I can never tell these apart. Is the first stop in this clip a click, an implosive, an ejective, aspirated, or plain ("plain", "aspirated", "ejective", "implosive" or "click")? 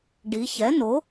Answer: plain